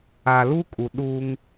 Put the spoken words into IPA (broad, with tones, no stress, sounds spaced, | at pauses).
a˨ l u˦ kʼ u˨ ɗ uː˦ ŋ